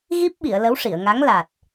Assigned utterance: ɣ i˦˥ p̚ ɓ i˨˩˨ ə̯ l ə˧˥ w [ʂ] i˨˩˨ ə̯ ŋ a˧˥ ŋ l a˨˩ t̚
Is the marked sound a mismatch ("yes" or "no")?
no